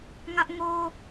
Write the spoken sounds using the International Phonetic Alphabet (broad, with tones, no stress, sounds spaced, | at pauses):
ŋ ä˦ ʔ ŋ o˦